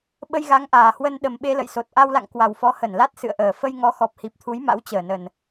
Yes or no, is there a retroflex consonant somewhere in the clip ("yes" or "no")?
no